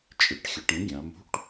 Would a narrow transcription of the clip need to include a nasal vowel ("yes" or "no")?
yes